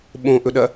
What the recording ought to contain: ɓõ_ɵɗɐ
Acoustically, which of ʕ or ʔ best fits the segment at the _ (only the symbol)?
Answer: ʔ